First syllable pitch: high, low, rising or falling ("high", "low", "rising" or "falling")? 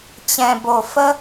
low